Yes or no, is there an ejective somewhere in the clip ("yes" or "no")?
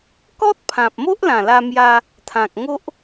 no